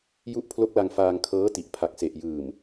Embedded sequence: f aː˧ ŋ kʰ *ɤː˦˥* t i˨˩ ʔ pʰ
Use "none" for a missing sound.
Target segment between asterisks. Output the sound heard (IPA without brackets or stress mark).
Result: ɤː˦˥